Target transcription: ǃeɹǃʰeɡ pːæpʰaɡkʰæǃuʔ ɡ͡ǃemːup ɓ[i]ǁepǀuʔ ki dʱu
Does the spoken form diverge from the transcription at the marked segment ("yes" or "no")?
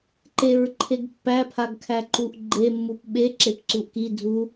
yes